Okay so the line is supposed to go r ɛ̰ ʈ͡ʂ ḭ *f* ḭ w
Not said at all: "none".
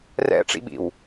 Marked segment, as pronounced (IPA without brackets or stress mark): ɓ